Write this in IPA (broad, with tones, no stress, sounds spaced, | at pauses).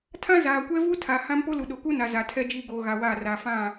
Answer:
tʰ ã˦ z aː˨ kʷ ɛ˦ v u˦ tʰ a˨ h ã˦ m p o˦ l u˨ ɗ o˨ k u˦ n a˨ z a˨ tʰ ɛ˦ d͡ʒ iː˦ ɡ oː˨ ɣ a˨ w aː˦˨ r a˨ f ã˦˨